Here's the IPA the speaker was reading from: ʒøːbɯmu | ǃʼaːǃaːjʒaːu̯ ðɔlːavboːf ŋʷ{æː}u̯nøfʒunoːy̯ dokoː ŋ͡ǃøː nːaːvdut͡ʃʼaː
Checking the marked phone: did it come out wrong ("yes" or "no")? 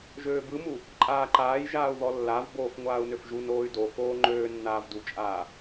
yes